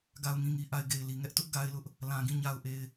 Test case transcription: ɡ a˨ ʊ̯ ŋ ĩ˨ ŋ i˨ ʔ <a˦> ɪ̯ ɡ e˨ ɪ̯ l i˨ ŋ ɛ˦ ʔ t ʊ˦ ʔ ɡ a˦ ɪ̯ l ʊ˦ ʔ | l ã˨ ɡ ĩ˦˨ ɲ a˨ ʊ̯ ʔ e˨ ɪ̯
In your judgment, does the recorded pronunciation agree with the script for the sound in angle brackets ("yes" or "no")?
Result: no